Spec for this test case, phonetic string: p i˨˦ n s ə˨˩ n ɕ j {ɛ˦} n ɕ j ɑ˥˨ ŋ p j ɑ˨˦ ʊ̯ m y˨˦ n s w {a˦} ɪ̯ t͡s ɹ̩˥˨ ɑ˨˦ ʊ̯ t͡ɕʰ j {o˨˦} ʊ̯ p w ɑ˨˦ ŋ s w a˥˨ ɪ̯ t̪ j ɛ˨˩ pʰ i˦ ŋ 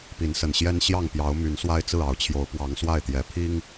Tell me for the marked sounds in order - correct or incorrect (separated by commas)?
correct, correct, correct